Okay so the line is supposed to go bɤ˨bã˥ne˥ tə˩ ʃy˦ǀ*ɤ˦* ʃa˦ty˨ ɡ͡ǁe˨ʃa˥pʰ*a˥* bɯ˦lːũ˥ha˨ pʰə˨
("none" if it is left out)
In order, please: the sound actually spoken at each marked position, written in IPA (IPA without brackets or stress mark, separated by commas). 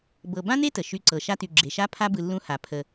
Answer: ɤ˨, a˥